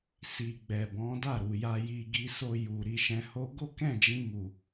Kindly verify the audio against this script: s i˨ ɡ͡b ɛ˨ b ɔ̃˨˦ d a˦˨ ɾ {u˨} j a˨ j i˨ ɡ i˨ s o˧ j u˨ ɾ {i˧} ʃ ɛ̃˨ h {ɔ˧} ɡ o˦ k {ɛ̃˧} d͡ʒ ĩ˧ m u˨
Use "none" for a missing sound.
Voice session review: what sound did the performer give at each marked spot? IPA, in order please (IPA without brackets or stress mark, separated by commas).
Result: u˨, i˨, o˧, ɛ̃˦˨